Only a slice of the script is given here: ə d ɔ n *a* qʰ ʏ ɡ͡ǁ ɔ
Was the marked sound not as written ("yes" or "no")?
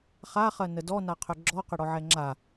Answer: no